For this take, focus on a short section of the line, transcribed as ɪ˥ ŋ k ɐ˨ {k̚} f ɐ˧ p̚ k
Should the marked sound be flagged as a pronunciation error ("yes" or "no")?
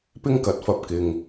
yes